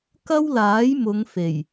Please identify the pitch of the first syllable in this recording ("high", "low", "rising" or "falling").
high